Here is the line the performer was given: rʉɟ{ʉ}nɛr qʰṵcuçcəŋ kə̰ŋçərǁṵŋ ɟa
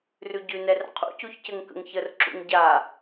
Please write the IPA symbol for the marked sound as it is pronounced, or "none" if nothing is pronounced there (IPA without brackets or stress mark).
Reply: ʉ